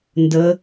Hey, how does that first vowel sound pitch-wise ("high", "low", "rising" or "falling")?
rising